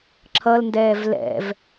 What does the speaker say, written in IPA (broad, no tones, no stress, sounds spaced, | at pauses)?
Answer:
ǁʰ ʌ l n d ɛː v l ɛ̰ v